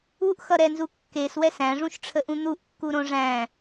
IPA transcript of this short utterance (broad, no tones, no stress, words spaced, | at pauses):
uʔxʌɾɛnzu kːeswɛs æ̃ʐũʃʈ͡ʂʰəʔũ n̪uʔkːuɾõ ʐæ̃